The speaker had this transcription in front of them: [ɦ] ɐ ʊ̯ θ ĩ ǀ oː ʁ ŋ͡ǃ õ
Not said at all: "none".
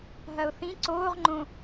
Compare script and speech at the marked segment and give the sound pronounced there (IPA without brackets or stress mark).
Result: ɦ